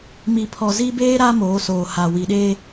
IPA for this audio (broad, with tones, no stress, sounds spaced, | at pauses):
m i˨ pʰ ɔ˨ z i˦ b eː˦ ɾ a˦ m oː˨˦ s oː˨ h a˨ w i˨ ɗ eː˦